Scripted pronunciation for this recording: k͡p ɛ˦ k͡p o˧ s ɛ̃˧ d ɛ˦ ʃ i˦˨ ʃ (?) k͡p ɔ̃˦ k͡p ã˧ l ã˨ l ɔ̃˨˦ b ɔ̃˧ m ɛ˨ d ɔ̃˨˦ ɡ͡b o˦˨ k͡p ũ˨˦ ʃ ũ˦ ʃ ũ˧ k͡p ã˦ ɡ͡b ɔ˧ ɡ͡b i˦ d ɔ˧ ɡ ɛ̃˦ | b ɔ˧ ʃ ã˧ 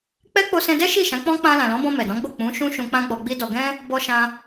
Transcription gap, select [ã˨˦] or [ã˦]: ã˨˦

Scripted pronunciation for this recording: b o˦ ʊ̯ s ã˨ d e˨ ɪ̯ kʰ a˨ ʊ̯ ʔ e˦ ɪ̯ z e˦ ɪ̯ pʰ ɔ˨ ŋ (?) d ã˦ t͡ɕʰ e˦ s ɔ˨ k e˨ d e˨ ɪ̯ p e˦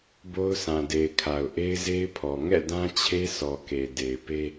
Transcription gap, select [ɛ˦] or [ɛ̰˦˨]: ɛ̰˦˨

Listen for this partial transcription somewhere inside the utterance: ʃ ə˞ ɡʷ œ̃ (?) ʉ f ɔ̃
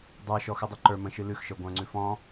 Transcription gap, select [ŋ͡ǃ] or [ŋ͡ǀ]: ŋ͡ǀ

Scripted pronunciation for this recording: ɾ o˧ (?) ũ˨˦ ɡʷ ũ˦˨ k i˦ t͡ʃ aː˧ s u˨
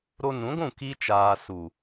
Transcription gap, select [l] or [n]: n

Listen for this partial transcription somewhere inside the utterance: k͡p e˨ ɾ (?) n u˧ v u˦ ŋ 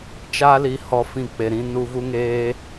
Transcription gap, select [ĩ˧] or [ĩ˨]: ĩ˧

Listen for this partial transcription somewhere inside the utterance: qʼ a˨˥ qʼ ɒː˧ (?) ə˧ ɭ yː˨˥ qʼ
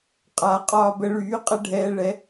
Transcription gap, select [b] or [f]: b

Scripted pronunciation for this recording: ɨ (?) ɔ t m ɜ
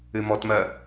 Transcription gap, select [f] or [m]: m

